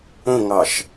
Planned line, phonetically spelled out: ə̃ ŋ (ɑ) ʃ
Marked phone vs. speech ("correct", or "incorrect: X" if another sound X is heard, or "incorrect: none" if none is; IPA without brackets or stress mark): correct